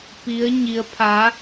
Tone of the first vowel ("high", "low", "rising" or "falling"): rising